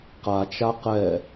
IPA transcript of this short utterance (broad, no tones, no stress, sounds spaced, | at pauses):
q a t͡ʃ a q ɛ